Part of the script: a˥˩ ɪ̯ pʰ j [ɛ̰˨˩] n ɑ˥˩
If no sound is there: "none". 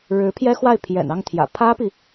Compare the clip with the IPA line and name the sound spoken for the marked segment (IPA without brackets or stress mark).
ɛ̰˨˩